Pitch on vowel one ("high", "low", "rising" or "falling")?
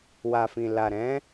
low